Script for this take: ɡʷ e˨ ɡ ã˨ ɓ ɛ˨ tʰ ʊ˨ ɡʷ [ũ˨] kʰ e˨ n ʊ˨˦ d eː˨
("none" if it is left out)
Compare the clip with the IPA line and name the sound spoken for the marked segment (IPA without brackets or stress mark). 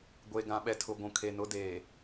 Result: ũ˨